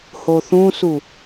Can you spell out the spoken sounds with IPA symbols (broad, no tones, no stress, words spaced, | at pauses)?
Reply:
hoθũsu